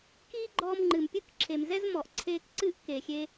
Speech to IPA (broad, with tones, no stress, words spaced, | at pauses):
kiː˦ɡ͡ǃɔː˧mŋ͡ǃɨ˨m pʲɨ˦˨kǁʰe˨mzɛ˦zmɔ˨ʔ ǀʰeː˧kǀɨ˦˨ʔ keː˨xʲeː˧